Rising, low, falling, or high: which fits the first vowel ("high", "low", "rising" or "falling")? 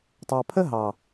low